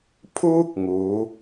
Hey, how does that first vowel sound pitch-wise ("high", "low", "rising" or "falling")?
high